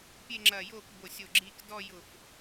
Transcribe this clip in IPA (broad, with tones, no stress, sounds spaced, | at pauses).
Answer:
pʲ e˥˧ ŋ͡ǁ ɐ˧˩ j oː˥˧ k b o˧˩ sʲ o˧˩ ɡ͡ǁ iː˧ k d ɔ˥˧ j ʊ˧˩ f